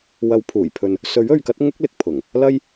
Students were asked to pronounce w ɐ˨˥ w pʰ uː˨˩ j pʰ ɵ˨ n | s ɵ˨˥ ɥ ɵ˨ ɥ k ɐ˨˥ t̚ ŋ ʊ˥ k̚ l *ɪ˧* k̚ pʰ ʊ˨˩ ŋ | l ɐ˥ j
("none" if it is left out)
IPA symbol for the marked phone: ɪ˨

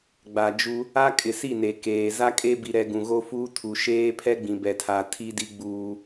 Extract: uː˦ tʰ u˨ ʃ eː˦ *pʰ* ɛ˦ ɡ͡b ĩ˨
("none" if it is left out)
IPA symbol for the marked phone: pʰ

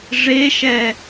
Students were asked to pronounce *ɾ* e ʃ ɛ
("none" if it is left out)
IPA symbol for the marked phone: ʐ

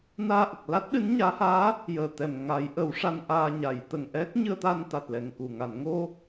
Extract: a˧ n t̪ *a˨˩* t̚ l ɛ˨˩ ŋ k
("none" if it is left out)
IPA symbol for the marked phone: a˨˩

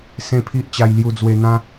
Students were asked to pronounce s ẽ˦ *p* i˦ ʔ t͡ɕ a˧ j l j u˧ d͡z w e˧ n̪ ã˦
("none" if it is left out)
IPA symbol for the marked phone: pʰ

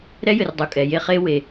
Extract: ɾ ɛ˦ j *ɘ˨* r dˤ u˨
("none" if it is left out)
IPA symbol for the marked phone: ɘ˨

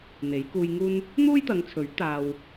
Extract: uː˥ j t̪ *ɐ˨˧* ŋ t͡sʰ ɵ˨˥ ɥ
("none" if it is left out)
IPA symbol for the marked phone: ɐ˨˧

